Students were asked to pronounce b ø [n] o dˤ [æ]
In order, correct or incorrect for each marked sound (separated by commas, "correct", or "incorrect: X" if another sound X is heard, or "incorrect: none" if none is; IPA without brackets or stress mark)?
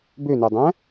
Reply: correct, incorrect: æ̃